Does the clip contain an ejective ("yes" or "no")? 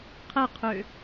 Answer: no